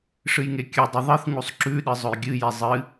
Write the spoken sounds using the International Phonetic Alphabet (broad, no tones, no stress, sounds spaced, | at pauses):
ʂ ɨ j ŋ e kʲ ɨ dˤ ɨ ðˤ ɨ θ ŋ u sˤ ǁ ʉ ɗ ɨ zˤ ɵ j ɡʲ ɨ j e zˤ ɨ